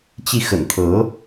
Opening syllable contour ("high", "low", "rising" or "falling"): falling